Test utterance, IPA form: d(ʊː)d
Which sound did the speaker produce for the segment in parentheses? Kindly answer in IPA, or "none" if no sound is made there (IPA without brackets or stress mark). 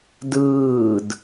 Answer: ɯː